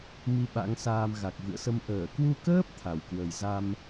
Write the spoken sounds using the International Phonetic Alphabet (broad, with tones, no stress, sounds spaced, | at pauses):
m i˧ ɓ a̰˧˥ ŋ s aː˧ m ɣ a˨˩ k̚ v ɨ̰˧˨ ə̯ s ə˧ m ʔ əː˧˩ k w u˧ k əː˦˥ p̚ t̪ʰ a˧˩ w k w ə˨˩ j z a˧ m